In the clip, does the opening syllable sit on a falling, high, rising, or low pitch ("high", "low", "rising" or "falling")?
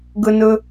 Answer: high